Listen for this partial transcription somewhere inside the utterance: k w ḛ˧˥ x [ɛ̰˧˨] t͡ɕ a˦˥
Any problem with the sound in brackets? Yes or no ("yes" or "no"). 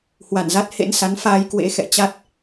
no